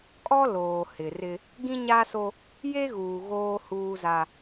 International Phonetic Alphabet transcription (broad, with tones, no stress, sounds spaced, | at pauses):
kʼ ɔ˦ l oː˨ h ɪ˨ r ɪ˦ | ɡ ĩ˦ ɲ a˦ s o˦ | j e˦ ɣ uː˨ ɣ oː˦ h uː˦ z a˦